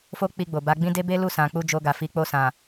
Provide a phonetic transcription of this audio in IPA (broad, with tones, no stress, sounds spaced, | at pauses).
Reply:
f o˦ k͡p i˧ ɡ͡b o˨ b a˨˦ ɡ͡b ĩ˦ d e˦ b e˦ l u˦˨ s ã˨ k͡p u˧ d͡ʒ o˧ ɡ a˨ f i˨˦ k͡p o˦˨ s ã˨